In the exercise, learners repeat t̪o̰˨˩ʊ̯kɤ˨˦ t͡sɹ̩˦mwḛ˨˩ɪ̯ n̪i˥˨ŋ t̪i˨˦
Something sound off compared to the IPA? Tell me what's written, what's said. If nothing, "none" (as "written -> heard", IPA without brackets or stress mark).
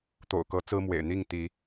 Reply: none